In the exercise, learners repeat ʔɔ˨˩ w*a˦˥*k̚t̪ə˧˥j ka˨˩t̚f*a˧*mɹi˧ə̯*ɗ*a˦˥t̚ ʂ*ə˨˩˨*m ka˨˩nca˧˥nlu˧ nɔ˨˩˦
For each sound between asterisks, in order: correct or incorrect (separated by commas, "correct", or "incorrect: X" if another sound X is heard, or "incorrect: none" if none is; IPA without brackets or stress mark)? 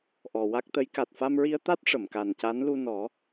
correct, correct, incorrect: t̪, correct